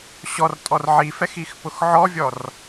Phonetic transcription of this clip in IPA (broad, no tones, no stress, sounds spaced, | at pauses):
ɕ ɔ r tʼ ɔ r ʕ i f ɛ x i x p ʊ x ʕ ɔ vʲ ɔ r